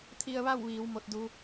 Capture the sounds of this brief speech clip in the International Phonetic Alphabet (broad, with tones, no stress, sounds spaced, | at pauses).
t̪ʰ i˧ ə̯ ʋ a˥˨ w ʋ iː˩˧ w m o˧˥ t̚ d u˧˥